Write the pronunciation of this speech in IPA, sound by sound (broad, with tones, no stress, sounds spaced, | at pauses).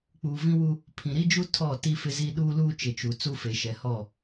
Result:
k͡p uː˨ v ĩ˦ w u˦ | pʰ ĩ˨ ɾ i˦ d͡ʒ u˦ tʰ ɔ˦˨ t i˦ f ɪ˦ z i˦ ɗ uː˦ l uː˦ t͡ʃ ɪ˨ t͡ʃ u˨ t͡s u˦ f e˨ ʃ ɛ˨ h ɔ˦˨